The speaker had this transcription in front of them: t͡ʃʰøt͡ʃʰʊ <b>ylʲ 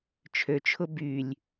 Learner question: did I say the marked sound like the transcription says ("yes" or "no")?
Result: yes